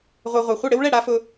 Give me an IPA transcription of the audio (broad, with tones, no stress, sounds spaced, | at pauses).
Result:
ʁʷ ɛ˧ ʁʷ a˨ χʷ ɪ˦˨ ɽ ɪ˦ w ɭ ɛ˦˨ ɽ a˦ f ʊ˦